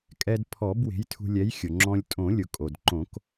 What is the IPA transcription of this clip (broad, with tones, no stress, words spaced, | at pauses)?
kʼɛ˧dpʰɔ˨˩˦b we̤˨˥jtʰṳ˧lʲɛ˨˥j xʲʊ˩ŋ͡ǁɔ̃˧lʲ tʼõ˨˩˦lʲʊ˩kʼo˩dǃõ˨˩˦k